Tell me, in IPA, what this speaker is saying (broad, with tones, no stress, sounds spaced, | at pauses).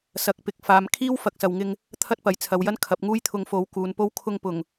s ɐ˨˥ k̚ p ɪ˨˥ k̚ f aː˨ m kʰ iː˥ w f ɐ˧ k̚ s ɐ˨ w ŋ ɪ˧ ŋ | t̪ʰ ɐ˥ t̚ p ɐ˨ j t͡sʰ ɐ˨˧ w j ɐ˥ n kʰ ɐ˨˥ p̚ ŋ uː˥ j t̪ʰ ʊ˧ ŋ f o˨˥ w k uː˨˧ n p o˥ w kʰ ʊ˧ ŋ p ʊ˨˩ ŋ